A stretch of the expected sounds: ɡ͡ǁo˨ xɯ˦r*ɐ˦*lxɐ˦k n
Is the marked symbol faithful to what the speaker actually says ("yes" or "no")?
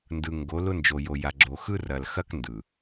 no